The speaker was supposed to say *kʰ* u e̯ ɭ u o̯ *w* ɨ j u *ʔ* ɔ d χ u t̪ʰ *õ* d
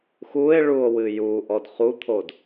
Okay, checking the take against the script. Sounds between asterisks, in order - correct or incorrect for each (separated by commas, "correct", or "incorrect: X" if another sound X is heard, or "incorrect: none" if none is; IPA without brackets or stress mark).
incorrect: x, correct, correct, incorrect: o